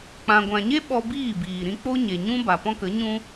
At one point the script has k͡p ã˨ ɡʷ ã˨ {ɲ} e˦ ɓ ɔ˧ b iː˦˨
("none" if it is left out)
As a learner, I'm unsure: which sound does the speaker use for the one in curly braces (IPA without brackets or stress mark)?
ɲ